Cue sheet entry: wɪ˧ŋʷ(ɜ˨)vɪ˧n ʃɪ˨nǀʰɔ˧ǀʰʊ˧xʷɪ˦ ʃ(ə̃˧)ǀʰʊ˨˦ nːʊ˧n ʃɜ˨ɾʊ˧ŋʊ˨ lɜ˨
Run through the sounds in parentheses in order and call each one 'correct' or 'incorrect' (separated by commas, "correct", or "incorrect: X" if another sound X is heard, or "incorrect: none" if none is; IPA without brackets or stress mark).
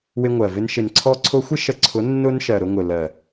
correct, incorrect: ə˧